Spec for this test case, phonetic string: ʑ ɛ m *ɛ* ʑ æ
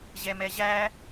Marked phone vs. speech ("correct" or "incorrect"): correct